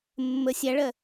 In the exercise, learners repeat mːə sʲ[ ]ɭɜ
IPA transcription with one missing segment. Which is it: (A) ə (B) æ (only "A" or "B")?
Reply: B